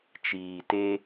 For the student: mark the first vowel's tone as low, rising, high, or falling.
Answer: low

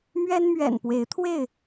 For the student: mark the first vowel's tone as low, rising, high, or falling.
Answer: high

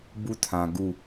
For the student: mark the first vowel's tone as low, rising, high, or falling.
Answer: high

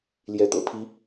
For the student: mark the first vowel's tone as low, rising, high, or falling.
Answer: rising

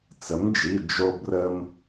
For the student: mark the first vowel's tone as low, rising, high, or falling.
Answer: rising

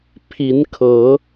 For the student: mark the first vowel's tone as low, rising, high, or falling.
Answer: rising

